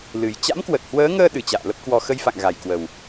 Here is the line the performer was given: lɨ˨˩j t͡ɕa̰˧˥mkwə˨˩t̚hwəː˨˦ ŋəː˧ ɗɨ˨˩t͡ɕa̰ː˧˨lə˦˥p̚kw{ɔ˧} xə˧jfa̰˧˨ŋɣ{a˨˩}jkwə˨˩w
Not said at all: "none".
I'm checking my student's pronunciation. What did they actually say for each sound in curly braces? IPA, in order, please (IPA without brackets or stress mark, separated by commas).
ɔ˧, a˨˩